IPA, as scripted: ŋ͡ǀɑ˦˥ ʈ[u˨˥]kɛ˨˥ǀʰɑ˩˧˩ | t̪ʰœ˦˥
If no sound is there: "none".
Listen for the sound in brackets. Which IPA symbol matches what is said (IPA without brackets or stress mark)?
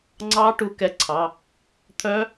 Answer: u˨˥